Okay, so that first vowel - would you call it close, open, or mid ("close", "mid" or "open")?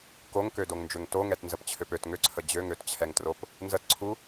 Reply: mid